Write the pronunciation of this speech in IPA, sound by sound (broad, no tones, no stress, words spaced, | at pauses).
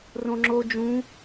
rõŋ͡ǁo d͡ʒũ